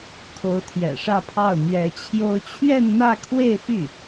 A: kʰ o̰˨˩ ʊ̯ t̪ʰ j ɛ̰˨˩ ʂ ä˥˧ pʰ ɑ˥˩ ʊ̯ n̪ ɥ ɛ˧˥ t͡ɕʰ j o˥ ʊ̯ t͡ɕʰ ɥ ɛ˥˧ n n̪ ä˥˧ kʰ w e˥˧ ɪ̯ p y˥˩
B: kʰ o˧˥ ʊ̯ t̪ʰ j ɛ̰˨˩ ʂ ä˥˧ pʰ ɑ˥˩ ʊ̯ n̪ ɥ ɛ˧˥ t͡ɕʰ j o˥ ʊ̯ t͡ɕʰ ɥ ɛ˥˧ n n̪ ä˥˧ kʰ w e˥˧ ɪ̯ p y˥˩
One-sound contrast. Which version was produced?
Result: B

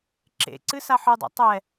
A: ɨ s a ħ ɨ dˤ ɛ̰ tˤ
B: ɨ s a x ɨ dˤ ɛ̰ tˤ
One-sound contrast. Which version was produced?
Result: A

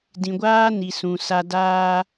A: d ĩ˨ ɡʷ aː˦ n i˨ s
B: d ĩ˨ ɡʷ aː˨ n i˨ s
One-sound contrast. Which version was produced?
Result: A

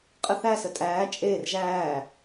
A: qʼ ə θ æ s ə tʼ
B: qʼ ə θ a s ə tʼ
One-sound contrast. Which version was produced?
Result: A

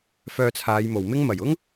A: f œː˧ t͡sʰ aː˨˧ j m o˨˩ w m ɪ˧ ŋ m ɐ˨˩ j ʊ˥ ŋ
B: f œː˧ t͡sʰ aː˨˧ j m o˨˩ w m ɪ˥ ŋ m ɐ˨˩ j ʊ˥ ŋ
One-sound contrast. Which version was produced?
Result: B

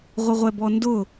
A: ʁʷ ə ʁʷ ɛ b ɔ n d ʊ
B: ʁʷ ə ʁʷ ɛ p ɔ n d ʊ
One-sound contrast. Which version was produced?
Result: A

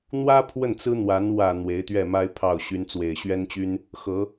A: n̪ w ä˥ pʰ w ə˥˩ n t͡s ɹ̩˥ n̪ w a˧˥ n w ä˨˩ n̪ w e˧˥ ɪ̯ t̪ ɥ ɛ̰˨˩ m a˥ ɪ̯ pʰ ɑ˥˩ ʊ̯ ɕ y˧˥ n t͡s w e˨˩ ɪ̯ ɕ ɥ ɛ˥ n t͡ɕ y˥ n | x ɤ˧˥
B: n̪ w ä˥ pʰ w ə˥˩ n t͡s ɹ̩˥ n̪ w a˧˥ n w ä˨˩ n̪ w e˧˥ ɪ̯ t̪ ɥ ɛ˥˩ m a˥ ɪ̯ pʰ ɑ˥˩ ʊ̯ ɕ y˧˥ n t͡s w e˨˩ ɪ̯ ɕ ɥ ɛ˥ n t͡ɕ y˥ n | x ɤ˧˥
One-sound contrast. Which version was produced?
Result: B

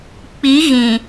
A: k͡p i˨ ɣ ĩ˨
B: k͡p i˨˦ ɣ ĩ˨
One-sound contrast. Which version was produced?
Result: B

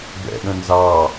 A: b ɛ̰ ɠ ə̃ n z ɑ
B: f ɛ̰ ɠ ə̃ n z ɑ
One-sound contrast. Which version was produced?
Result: A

